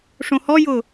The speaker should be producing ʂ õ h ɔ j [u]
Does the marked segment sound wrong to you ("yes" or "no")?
yes